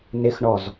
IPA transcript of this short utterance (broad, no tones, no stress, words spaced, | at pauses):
nɪxɳɔz